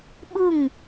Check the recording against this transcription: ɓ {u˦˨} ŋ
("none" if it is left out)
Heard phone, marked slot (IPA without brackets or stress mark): u˦˨